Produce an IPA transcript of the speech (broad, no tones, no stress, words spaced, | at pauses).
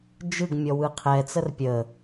d͡ʒɯɡmʲɔ wɯqʰɛt͡sər pʲə